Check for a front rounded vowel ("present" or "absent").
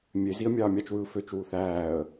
present